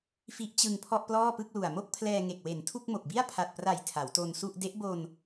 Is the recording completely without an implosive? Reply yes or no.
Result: yes